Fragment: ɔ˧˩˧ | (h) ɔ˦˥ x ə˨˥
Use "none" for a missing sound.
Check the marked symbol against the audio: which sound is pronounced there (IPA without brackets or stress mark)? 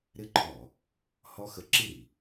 h